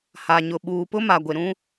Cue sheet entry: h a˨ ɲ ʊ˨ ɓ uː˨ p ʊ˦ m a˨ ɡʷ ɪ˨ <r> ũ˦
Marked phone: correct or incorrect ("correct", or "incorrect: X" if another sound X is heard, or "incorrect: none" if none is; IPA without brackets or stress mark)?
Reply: incorrect: ɾ